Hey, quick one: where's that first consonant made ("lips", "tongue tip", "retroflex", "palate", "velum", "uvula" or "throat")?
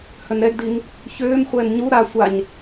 throat